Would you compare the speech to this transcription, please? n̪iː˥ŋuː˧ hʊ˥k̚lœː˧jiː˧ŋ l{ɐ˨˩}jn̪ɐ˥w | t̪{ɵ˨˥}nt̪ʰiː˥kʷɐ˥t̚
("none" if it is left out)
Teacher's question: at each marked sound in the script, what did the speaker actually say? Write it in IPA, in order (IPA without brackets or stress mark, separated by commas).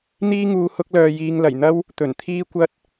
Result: ɐ˨˩, ɵ˨˩